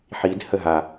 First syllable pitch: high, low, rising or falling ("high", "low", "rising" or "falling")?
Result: rising